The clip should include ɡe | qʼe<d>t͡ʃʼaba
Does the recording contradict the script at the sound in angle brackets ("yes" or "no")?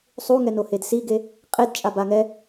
no